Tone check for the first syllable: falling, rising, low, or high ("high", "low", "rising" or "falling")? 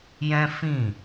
high